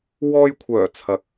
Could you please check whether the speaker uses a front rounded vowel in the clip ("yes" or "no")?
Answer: yes